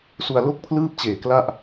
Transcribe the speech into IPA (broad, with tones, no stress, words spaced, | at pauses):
su˧a̯lo˥˩k̚pʰlɯː˥˩p̚t͡ɕeː˨˩ kla˥˩ʔ